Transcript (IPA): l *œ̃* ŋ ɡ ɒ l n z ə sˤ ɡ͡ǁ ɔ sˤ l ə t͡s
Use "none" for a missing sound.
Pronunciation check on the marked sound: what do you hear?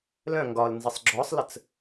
œ̃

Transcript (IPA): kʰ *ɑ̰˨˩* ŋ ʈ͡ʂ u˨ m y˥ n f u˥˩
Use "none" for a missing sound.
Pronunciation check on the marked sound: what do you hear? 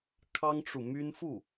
ɑ˥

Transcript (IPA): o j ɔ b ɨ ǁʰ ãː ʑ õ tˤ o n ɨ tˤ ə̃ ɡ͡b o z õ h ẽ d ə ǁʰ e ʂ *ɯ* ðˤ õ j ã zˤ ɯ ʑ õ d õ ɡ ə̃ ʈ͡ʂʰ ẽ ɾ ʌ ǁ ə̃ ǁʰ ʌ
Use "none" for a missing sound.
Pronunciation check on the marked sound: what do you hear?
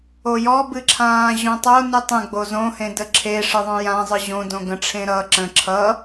ɯ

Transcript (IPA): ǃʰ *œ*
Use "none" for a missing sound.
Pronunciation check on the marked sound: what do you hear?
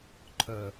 œ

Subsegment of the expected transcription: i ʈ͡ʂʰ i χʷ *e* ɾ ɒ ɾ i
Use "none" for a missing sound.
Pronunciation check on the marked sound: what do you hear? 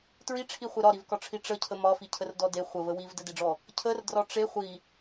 e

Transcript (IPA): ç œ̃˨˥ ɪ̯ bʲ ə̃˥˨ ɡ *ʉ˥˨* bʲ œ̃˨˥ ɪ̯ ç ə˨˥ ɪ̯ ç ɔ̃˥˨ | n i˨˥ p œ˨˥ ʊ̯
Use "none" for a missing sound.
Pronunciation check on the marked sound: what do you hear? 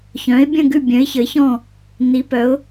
ʉ˥˨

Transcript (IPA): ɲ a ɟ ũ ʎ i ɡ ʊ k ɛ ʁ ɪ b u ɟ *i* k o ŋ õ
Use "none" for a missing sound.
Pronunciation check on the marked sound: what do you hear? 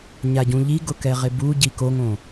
i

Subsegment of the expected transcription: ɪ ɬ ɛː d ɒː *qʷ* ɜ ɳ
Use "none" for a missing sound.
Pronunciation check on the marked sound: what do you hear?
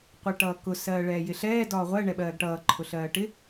ʁʷ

